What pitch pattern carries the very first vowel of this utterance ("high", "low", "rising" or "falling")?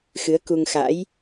rising